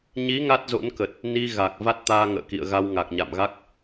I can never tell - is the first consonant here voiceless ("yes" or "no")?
no